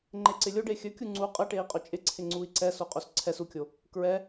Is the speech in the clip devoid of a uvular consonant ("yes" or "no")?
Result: no